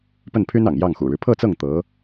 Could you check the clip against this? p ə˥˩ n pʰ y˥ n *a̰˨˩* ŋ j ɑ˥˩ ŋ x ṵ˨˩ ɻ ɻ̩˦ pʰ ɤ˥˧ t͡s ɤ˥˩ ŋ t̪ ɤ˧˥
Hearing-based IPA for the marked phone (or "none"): ɑ̰˨˩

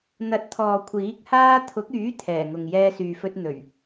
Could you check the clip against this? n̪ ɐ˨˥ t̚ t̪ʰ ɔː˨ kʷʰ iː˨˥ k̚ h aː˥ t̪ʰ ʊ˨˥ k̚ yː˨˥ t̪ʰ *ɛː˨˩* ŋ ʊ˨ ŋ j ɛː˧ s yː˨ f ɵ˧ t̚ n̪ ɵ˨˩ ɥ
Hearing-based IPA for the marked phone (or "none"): ɛː˨˩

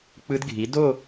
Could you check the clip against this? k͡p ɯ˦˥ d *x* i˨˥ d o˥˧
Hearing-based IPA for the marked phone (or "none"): ɡʱ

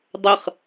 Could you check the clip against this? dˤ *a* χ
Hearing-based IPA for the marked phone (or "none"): ə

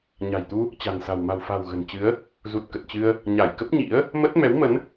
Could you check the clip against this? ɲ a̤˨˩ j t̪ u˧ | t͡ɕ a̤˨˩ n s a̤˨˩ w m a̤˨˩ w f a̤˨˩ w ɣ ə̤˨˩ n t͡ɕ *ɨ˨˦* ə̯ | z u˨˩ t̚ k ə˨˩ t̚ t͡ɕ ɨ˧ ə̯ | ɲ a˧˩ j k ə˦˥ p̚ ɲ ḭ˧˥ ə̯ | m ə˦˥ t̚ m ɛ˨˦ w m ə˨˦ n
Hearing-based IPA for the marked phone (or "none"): ɨ˨˦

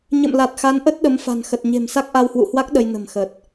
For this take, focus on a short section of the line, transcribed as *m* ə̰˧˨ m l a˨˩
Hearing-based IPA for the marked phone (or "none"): ɲ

